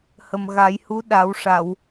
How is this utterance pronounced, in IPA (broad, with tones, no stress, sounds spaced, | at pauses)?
h ə˨˩ m ɣ a˨˩˦ j h u˧˥ ɗ a˨˩˦ w ʂ a˨˩˨ w